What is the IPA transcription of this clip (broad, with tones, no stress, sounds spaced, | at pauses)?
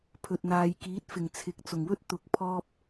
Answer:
pʰ ɵ˨ t̚ n̪ aː˨ j k iː˨˥ t̚ f ɪ˨˩ ŋ t͡sʰ ɪ˨ k̚ t͡s ʊ˨˩ ŋ w ɵ˥ t̚ t̪ ʊ˨ k̚ pʰ ɔː˧ p̚